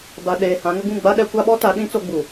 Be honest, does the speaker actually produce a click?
no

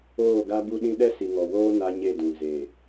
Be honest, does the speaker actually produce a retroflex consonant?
no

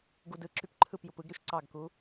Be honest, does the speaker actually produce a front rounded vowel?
yes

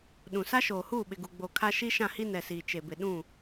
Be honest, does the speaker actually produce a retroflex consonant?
no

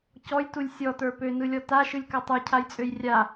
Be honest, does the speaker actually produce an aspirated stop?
yes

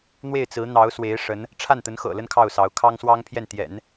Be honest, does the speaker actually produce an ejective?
no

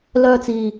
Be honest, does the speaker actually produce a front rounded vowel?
yes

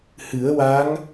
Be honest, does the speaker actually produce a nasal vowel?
no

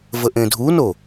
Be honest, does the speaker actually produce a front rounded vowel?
no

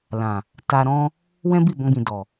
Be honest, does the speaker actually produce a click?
no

